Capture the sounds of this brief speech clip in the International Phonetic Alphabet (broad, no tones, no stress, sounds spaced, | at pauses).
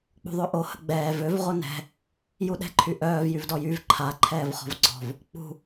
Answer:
k͡p ṳ ðˤ ø ʔ o h ə ɡ͡b ɛː v ø v ʁ o n ɛ̤ | j u ɗ ɛ̤ ǃʰ y ʔ œː v j y v d ɔ j y v ǃʰ a ǃʰ ɛː v χ ɔ̤ v ɡ͡ǀ ɔ̤ v | k͡p ṳ